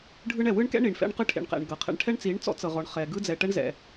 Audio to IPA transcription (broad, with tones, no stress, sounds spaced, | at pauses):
ɖʱ ɯ˦ ɳ ɛ˨ w ɯ˦ ɳ k ɛ̰˦ ɳ i˨ ɳ f ɛ̰˦ ɳ q ɯ˦ ʈʰ ḛ˨ ɳ q ɛ̰˨ ɳ ɡ ɤ˨ qʰ ɛ̰˦ ɳ ʈʰ ɛ˦ ɳ t͡s i˨˦ ɳ t͡s ɔ̰˦ t͡s ɤ˨ ʁ ɔ˨ ɳ χ ɛ˨ ɡ ɯ˦ d͡z ɛ˨ ʈ ɛ˦ ɳ z ɛ̰˨